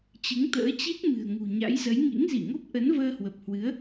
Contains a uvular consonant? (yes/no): no